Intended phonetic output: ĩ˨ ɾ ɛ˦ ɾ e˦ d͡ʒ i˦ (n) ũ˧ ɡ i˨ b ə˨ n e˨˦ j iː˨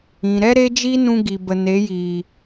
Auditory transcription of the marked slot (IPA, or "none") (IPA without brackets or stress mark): n